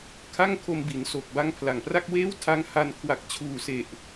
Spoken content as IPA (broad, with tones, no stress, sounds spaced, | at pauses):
kʰ a˥˩ ŋ kʰ o˧ m b i˩˦ n s o˨˩ k̚ b a˦˥ ŋ pʰ l a˨˩ ŋ p r a˥˩ k̚ w eː˥˩ w tʰ a˦˥ ŋ h a˧ n kʰ w a˨˩ k̚ t͡ɕʰ uː˨˩ s e˨˩ ʔ